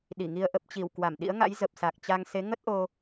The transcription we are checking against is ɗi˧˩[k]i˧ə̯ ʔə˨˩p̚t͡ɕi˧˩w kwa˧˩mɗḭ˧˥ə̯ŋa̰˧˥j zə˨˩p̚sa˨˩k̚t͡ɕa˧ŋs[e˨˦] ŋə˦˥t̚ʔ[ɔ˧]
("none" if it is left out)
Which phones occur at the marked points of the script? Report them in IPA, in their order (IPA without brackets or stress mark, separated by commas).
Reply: ŋ, e˨˦, o˧